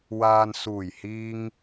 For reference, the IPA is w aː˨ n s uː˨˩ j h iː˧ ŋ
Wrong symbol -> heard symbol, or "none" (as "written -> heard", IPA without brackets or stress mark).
none